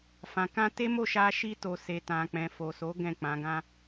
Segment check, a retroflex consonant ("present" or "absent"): absent